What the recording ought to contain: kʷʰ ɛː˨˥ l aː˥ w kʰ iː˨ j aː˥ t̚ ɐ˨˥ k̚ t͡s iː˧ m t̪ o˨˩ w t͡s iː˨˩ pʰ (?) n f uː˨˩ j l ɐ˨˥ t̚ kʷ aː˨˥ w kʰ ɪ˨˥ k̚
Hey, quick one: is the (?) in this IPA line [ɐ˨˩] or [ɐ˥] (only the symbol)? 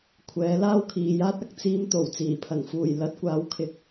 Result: ɐ˨˩